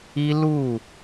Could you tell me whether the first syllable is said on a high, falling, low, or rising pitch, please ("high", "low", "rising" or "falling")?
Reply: high